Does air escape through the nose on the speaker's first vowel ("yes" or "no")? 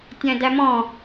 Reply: yes